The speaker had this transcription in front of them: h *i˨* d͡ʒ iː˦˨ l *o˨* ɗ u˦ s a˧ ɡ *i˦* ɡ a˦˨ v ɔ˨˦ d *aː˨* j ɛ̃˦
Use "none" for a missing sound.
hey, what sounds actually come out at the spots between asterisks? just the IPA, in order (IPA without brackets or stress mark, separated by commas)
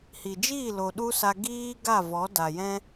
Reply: i˨, o˨, iː˦, a˨